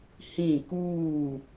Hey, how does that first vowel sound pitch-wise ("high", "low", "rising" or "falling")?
falling